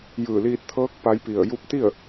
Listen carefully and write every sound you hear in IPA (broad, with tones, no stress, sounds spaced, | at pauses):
j ɯː˧˩ l iː˧ t̚ t̪ʰ ɤː˧˥ k̚ p a˧˥ j p i˧˩ ə̯ j u˧˥ p̚ t̪ i˥˨ ə̯